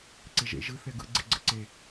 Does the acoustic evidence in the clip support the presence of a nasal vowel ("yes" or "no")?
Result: no